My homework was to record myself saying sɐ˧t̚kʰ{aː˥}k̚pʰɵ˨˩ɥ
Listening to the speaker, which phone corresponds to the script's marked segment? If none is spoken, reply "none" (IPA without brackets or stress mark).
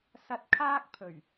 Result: aː˥